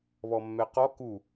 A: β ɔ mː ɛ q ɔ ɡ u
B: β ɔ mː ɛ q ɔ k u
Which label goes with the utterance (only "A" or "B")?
B